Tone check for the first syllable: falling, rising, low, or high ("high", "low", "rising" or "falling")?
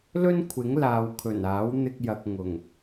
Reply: high